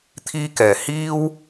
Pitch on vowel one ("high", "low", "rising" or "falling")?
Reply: high